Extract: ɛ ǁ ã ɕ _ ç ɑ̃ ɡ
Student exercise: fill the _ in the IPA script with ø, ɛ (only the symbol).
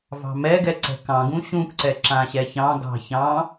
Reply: ɛ